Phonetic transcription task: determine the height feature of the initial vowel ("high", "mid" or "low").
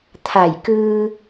low